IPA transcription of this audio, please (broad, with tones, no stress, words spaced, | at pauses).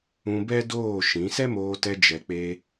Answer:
ũ˧bɛ˦doː˦˨ ʃĩ˨˦ sɛ˦moː˧tɛ˧ d͡ʒɛ˨k͡pe˧